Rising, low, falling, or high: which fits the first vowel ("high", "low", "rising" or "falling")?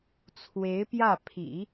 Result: rising